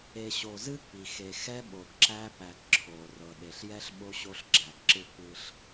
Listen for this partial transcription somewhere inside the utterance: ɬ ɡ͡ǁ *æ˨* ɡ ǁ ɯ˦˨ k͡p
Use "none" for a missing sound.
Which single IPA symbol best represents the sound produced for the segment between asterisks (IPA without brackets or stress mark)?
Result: æ˨